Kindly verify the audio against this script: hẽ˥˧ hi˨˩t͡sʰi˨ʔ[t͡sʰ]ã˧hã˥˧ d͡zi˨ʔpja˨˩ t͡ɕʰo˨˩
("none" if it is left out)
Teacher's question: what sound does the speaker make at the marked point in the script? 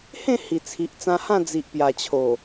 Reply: t͡s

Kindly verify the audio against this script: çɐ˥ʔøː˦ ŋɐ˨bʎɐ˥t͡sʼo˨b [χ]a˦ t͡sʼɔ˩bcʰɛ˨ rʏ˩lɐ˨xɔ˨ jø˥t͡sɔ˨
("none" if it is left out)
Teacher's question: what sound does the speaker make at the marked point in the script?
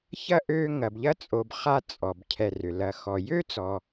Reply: χ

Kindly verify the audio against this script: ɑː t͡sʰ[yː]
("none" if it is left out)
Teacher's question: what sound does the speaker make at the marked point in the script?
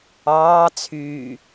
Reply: yː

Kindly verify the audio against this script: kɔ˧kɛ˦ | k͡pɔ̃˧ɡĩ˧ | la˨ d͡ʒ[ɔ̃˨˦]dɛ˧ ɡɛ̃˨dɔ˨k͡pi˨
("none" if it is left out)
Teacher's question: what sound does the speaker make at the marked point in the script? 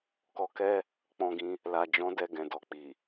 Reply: ɔ̃˨˦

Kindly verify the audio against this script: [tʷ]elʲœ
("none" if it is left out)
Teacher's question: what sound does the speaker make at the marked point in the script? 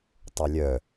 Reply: tˤ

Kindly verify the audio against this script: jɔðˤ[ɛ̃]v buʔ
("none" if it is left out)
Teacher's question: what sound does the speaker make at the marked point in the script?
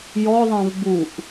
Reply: ɛ̃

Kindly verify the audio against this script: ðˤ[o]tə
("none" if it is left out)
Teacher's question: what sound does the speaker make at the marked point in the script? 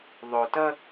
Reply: o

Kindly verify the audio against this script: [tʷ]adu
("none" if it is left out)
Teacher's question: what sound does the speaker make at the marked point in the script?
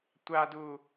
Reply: tʷ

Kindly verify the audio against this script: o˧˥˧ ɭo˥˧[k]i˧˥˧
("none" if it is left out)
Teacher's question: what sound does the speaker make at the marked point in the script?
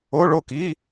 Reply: k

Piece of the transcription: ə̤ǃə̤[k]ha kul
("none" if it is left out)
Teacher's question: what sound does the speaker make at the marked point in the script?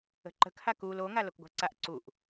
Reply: k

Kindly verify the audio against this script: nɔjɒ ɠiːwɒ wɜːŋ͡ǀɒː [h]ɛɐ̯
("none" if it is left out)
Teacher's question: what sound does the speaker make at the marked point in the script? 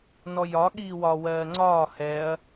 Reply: h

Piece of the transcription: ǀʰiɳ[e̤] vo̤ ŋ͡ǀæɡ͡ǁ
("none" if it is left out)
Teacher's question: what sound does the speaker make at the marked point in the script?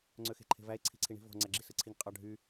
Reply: i̤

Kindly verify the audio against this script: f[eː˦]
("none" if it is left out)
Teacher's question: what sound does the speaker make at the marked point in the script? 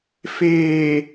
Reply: eː˨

